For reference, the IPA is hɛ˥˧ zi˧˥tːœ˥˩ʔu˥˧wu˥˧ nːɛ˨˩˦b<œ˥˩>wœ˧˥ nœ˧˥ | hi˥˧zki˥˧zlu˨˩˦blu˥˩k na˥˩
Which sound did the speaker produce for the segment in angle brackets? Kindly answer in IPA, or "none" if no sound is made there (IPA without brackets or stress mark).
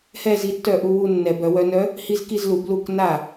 œ˨˩˦